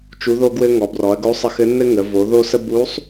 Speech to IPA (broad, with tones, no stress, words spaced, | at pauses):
t͡ʃu˧˥ðo˥ɡwɘ˥ ŋɔ˩˧brɔ˩˧ɐ̯ɡo˧˥ sˤə˧˥xɘ˧˥nːɘ˥ ŋə˩˧ vo˩˧ ðo˥sə˥ bu˧˥sˤ